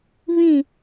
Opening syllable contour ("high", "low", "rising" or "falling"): falling